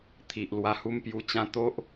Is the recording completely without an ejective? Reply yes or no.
yes